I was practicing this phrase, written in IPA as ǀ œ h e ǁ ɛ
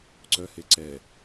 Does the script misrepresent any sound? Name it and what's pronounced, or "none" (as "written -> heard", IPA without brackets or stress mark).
ǁ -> ǀ